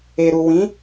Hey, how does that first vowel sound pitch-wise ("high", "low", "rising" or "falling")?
low